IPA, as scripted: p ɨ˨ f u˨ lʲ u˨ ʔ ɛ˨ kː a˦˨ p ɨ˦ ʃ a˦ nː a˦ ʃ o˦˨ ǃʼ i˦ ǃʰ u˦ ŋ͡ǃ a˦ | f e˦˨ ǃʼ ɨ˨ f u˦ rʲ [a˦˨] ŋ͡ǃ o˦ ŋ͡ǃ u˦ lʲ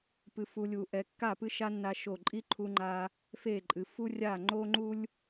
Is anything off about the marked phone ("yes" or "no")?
no